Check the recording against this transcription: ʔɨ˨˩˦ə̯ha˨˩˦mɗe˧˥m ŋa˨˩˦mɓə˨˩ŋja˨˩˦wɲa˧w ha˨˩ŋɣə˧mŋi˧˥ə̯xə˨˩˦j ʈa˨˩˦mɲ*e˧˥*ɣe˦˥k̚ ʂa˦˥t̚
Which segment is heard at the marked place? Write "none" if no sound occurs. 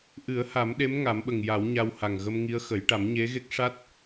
e˧˥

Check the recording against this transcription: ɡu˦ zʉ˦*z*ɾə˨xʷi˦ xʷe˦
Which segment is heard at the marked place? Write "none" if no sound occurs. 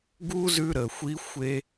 none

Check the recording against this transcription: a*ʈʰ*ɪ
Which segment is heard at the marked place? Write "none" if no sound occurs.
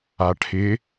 ʈʰ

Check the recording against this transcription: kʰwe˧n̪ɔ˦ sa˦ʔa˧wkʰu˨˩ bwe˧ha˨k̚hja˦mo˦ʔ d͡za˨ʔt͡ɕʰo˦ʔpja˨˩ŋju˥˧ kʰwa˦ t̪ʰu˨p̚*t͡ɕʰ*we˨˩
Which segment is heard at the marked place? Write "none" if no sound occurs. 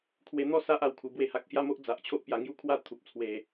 t͡sʰ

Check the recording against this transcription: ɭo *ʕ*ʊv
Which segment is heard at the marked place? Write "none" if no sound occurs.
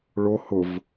h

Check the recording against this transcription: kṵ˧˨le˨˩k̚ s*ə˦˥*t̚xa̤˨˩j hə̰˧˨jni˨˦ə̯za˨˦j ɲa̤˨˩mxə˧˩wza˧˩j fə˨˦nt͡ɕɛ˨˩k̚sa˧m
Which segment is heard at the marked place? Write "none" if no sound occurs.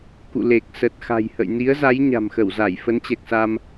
ə˨˩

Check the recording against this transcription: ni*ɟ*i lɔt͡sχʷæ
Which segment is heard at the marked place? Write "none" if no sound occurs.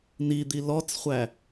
d̪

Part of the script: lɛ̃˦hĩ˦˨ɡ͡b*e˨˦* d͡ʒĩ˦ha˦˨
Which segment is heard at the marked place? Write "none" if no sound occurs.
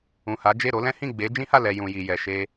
e˨˦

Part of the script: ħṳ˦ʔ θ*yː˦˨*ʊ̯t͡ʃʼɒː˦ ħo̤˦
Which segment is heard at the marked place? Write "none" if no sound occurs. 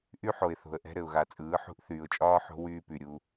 yː˨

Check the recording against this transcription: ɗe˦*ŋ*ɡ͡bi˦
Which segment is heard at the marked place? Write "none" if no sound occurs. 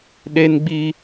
n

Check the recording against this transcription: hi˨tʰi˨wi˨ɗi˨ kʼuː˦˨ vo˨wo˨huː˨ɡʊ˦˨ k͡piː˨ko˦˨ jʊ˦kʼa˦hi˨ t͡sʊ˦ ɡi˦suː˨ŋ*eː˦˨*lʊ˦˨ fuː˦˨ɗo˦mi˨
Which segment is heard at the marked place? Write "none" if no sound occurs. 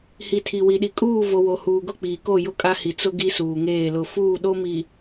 eː˦˨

